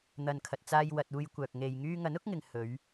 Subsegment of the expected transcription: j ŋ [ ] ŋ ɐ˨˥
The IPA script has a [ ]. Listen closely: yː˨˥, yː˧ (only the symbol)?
yː˧